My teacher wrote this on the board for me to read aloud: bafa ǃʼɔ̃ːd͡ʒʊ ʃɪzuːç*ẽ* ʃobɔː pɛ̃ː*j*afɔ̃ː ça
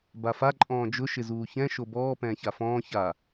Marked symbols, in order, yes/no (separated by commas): no, no